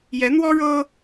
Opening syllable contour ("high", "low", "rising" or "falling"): rising